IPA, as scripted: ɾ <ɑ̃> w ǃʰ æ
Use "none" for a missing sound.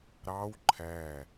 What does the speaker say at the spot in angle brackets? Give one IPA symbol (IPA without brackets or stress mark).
ɑ